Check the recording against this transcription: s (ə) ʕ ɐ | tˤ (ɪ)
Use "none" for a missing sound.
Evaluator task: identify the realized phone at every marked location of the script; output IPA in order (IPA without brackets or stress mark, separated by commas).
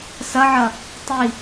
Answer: ɐ, i